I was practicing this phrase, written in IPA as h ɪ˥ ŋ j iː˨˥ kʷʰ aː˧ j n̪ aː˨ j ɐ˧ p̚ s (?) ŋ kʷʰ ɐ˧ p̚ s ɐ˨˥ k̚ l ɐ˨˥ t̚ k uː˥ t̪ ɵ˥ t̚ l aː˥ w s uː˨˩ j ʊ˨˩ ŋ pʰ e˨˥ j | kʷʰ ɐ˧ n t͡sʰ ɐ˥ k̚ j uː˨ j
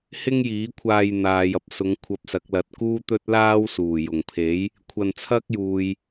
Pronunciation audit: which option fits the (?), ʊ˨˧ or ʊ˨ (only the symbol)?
ʊ˨˧